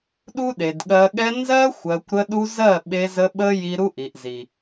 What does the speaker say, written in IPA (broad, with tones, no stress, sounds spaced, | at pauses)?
ɗ u˦ ɗ e˨ d ɠ ɜ˧ ɠ ɛ˧ n z ɜ˦ xʷ ɜ˨ kʷ ɾ ə˧ ɗ u˧ z ɜ˦˨ ɓ e˧ z ə˧ ɓ ə˦ j i˧ ɾ u˦ ʔ i˨ ʔ z i˨